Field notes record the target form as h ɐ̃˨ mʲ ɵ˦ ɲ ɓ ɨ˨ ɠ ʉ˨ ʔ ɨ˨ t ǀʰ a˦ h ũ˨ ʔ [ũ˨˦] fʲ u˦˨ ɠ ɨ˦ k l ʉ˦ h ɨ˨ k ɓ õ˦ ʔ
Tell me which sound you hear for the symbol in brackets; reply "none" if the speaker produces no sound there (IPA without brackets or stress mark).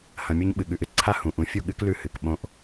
ũ˨˦